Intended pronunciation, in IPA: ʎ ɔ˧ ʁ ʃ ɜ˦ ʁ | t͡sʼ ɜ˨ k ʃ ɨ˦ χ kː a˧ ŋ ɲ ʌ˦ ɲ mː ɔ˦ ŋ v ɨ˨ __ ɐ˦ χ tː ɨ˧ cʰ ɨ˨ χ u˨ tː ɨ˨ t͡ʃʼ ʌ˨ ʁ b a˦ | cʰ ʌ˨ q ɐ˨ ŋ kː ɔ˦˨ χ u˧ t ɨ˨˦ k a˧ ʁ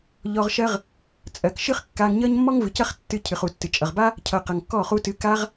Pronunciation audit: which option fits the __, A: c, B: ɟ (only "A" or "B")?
A